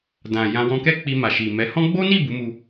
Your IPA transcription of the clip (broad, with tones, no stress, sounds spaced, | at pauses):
d ã˨ j ã˧ w ɔ̃˧ k ɛ˦ k͡p i˧ m a˨ ʃ i˨ m ɛ˨˦ h ɔ̃˦ ɡ͡b o˦ n i˦˨ b u˨˦ m u˧